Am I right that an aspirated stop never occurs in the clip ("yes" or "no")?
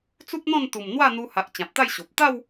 yes